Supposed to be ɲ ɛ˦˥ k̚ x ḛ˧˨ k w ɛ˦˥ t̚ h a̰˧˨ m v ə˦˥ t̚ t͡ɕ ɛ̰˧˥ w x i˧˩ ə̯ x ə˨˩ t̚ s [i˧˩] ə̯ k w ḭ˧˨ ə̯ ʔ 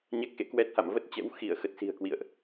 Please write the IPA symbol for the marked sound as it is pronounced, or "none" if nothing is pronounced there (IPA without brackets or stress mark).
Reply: i̤˨˩